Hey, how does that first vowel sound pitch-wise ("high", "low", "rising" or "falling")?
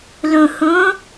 low